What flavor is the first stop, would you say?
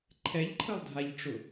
click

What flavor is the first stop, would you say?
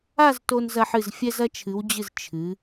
plain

